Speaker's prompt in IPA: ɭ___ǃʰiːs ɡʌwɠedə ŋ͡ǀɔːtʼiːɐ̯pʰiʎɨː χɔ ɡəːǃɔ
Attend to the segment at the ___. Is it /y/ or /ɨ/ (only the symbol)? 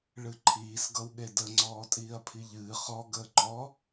ɨ